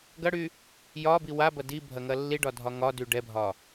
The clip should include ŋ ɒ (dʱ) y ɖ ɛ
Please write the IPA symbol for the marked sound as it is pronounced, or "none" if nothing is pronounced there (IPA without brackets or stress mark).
d